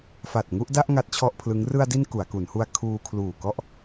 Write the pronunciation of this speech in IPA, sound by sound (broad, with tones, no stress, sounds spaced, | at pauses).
f a˨˩ t̚ ŋ u˥˩ ʔ d a˥˩ ʔ ŋ a˦˥ t̚ t͡ɕʰ ɔ˥˩ ʔ pʰ l ɯ˦˥ ŋ r ɯ˧ a̯ d i˧ n k u˩˦ a̯ k u˩˦ n h u˧ a̯ kʰ uː˧ kʰ l uː˨˩ k ɔ˥˩ ʔ